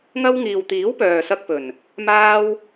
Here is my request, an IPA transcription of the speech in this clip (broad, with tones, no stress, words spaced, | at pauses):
ŋɐ˥w ŋiː˨wt̪iː˨˥w pœː˨sɐ˧k̚pɵ˨˩n | maː˥w